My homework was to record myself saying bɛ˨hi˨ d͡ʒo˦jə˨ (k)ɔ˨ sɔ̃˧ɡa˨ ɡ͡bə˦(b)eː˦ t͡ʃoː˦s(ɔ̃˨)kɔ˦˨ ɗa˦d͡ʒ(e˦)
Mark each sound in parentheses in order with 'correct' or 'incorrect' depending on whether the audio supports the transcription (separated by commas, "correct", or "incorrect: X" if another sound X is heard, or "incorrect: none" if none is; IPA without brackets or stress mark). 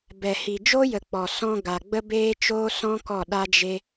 incorrect: k͡p, correct, incorrect: ɔ̃˦, correct